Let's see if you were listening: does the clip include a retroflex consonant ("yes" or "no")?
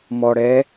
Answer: yes